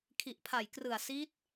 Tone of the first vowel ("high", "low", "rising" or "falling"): low